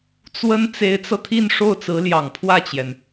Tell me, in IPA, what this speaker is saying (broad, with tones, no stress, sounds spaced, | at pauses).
t͡s w ə˥ n t͡s e˧˥ ɪ̯ t͡s ɤ˧ t̪ʰ i˥˧ n ʂ o˥˩ ʊ̯ t͡s ɹ̩˧˥ l j ɑ˨˩ ŋ pʰ w ä˥˩ t͡ɕ j ɛ˩ n